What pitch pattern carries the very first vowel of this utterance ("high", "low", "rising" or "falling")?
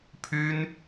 high